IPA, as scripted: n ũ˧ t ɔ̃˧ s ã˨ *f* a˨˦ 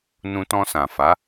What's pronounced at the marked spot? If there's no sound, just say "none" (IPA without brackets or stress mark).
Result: f